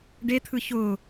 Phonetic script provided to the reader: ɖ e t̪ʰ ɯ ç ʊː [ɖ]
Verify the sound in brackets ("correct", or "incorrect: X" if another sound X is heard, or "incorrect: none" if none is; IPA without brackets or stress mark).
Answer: incorrect: none